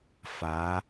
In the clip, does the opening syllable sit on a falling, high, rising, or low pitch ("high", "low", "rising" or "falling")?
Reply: rising